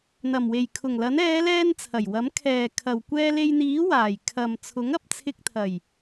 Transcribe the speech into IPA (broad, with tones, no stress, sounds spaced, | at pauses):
n̪ ɐ˨˩ m w e˨˩ j kʰ ʊ˨˩ ŋ l ɐ˨˥ n ɛː˨˧ l ɛː˧ n t͡sʰ ɐ˨˩ j w ɐ˨˥ m kʰ ɛː˨ kʰ ɐ˨ w kʷ ɛː˧ l e˧ j n̪ iː˨˥ w aː˨˩ j kʰ ɐ˨ m t͡sʰ ʊ˨˥ ŋ ɐ˨ p̚ t͡sʰ ɪ˧ k̚ t̪ʰ ɐ˨˩ j